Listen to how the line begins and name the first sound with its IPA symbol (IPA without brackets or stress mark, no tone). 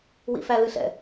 w